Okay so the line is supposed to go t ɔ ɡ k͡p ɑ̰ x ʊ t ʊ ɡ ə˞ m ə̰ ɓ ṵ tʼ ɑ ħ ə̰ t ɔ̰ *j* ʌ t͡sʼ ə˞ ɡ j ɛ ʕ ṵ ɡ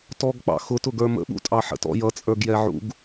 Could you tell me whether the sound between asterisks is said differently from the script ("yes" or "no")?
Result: no